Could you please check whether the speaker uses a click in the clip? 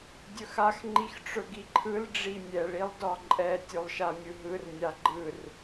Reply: yes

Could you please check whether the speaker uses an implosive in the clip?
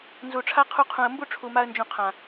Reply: no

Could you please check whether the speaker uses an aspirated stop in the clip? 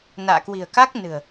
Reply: no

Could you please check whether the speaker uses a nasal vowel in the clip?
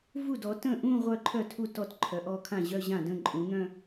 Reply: yes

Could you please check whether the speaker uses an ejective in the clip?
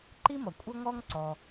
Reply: yes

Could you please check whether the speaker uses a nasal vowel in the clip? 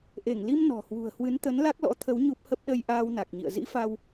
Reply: no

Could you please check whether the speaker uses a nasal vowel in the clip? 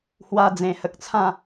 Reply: yes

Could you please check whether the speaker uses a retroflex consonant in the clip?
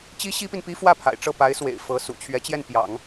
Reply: yes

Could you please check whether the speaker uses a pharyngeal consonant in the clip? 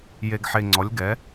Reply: yes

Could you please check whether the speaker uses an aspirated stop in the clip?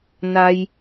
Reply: no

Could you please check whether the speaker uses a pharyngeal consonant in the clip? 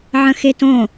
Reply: yes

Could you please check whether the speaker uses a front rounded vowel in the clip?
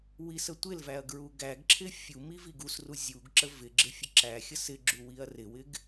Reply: no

